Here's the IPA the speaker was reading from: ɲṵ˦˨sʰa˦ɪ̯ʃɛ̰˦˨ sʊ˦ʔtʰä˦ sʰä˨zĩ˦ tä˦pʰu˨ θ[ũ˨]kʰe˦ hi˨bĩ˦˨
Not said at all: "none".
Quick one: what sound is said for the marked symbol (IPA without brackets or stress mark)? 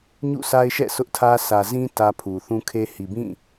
ũ˦